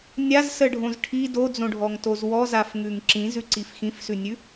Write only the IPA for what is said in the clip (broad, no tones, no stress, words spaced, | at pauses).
nʲazsəɖʱõz ʈʰi dod͡zõɖʱɔŋtoz wɔzafŋʉŋ ǁĩzʉǀif xĩfsʉnʲʉ